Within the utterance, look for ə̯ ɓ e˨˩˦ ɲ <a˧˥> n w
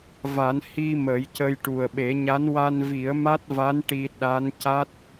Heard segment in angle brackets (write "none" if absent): a˧˥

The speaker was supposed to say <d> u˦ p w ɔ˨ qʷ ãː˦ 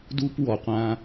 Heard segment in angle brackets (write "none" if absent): d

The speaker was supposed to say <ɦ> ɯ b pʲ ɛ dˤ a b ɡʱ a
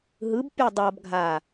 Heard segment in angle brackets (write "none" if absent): ɦ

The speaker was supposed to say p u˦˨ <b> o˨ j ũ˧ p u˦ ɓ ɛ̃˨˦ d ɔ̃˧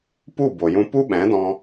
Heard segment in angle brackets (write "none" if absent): b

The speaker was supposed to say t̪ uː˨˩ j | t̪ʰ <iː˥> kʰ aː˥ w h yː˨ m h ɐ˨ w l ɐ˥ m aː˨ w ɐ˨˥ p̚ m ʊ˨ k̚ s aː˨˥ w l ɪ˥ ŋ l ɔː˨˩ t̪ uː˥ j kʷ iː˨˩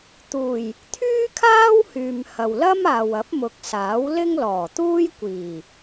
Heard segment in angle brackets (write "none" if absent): yː˥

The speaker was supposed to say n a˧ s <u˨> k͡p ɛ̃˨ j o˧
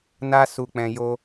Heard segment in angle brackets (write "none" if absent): u˨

